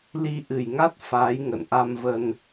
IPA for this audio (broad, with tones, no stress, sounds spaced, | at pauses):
l i˧ ʔ ɨ˨˩ j ŋ a˦˥ t̚ f aː˨˦ j ŋ ə̰˧˨ n ʔ a˧ m v ə˧ n